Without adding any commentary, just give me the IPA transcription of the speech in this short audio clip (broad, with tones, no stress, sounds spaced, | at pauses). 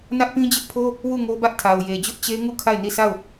n ä˦ ʔ p ĩ˦ d͡ʑ ɪ˦ ʔ pʰ o˦ | w u˦˨ ŋ o˦ b ä˦ ʔ tʰ a˨ ʊ̯ j e˨ d͡ʑ ʊ˦ ʔ t͡ɕ e˦ ŋ u˦˨ kʰ a˦˨ ɪ̯ n i˦˨ s a˦˨ ʊ̯